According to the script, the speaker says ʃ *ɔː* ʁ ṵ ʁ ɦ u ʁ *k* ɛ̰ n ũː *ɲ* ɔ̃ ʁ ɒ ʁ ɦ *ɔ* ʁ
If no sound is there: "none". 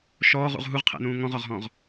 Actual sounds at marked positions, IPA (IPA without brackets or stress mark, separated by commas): ɔː, qʰ, ŋ, ɔ̃